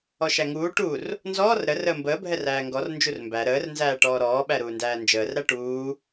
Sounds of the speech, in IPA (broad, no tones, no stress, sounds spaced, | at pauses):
ɔ ʃ æ ŋ uː ʈ u r | n z ɔː r ɾ ə r əː m b əː bʱ ɛ r æː ŋ ɡ ɔ r n d͡ʒ u r m b æ ɾ əː r n z æː ʈ ɔː ɾ ɔː ɓ æ ɾ uː n d æː n d͡ʒ əː r ɾ æ ʈ uː